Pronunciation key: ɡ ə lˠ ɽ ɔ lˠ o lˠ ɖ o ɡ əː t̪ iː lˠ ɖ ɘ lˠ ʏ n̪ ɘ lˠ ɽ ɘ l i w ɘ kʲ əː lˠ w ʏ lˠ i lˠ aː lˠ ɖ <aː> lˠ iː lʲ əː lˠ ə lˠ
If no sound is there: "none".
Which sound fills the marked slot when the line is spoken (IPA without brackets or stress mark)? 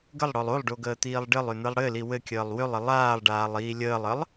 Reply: aː